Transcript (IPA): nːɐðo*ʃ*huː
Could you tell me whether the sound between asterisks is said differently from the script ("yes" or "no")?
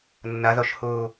no